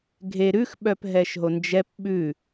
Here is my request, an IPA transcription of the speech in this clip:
ɡʱ e ɾ ʉ x ɓ œ p ɦ ɛ ʃ ɦ o n d͡ʒ ɛ p ɓ ʉ

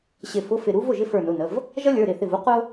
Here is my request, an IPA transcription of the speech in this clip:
ɕ ɪ˧˩ f ʊ˧˥˧ f ɪ˧˩ ɾ u˥ v ʊ˥˩ ʒ ɪ˥ f ə˞˧˩ n ʊ˩˧˩ n ə˩˧˩ v | ʒ ʌ˥ lʲ ə˞˩˧˩ ɾ ɪ˥˩ θ ɪ˧˩ v u˥ q ʊ˥

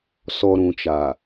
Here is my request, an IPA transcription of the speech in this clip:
s ɔ˨ ɾ ũ˨ t͡ʃ a˨

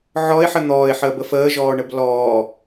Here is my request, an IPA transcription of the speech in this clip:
ʕ ɔ ɪ̯ ħ ə n̪ ɔː ɪ̯ ħ əː b ə f əː ʒ ɔː ɳ ə b l ɔː

